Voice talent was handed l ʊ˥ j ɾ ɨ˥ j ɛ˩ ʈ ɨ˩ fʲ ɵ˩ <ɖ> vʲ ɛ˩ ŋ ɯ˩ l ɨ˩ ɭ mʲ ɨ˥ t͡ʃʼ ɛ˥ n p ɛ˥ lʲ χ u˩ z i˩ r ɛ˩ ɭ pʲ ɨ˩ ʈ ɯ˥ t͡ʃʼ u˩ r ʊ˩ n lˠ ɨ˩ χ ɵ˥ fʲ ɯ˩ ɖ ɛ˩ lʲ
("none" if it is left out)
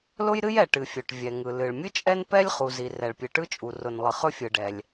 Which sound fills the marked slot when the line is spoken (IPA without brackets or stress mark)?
ʈ